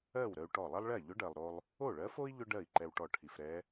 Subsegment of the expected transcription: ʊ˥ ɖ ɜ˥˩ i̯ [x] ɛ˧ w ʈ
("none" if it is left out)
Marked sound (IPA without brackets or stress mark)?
ǃ